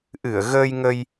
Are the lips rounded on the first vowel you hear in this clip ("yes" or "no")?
no